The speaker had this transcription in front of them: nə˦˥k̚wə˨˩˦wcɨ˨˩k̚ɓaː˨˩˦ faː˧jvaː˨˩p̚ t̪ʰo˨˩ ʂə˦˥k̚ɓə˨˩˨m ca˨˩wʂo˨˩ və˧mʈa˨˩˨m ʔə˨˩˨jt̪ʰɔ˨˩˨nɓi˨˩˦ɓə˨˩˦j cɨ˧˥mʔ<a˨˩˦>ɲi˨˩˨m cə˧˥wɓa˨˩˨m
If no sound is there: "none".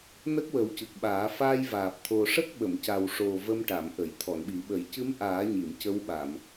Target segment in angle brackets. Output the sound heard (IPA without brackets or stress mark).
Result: aː˨˩˦